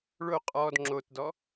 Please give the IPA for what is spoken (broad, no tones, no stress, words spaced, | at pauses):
ɭo qʼɔd ŋ͡ǁotdɔ